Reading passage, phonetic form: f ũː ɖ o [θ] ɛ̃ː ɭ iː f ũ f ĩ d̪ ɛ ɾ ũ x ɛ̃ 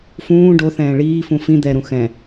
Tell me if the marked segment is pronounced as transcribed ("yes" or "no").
yes